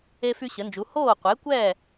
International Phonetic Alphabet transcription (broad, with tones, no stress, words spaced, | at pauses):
e˥fy˥ɕə˩˥nd͡ʒu˩˥ hoː˥˩qʷe˩˥kʷɛː˥˩